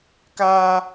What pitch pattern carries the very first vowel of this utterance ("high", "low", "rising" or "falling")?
high